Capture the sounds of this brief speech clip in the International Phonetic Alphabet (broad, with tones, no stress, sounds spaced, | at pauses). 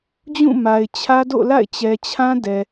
d͡ʑ ũ˦˨ m a˨ ɪ̯ t͡ɕʰ ä˦ d o̰˦˨ l a̰˦˨ ɪ̯ t͡ɕ ɛ˨ t͡ɕʰ ã˦ d ɛ˨